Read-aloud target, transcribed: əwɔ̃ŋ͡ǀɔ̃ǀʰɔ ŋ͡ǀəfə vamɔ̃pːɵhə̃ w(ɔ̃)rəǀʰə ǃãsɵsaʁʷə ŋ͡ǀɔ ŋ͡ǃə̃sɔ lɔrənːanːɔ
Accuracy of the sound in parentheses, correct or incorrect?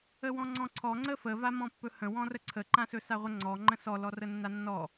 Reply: correct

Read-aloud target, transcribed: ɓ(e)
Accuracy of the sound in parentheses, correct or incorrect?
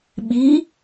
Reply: incorrect: i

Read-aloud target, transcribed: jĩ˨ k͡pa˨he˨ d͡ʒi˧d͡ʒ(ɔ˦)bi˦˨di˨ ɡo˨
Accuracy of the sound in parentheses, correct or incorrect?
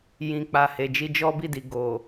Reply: correct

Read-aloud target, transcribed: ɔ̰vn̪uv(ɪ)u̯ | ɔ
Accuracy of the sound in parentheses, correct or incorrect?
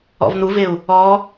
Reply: correct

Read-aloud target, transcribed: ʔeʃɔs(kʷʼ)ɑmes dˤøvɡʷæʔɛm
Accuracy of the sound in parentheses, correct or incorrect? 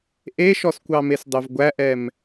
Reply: incorrect: kʷ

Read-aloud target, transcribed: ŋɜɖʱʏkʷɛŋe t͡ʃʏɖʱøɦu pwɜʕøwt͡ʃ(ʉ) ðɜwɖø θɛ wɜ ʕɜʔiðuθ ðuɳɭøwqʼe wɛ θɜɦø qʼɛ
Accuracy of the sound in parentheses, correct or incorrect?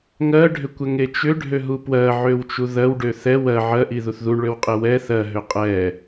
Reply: incorrect: u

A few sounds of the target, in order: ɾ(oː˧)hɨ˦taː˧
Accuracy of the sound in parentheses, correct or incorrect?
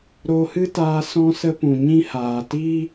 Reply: correct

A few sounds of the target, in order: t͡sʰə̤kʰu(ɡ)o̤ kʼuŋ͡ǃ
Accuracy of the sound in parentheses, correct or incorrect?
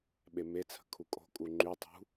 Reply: incorrect: kʼ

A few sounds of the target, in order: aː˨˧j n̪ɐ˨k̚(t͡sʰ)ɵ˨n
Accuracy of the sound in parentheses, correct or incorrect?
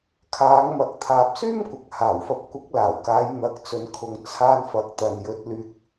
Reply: incorrect: t͡s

